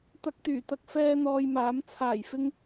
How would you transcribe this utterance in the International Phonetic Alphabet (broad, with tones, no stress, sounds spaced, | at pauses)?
t̪ ɐ˧ k̚ t̪ yː˨˩ t̪ ɐ˧ k̚ f ɛː˥ n̪ ɔː˧ j m aː˨˥ m t͡sʰ aː˨˩ j f ɪ˧ ŋ